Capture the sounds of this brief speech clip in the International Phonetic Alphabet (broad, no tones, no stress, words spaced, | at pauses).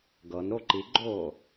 ɡɤnɾo ǃiɡ͡ǃoː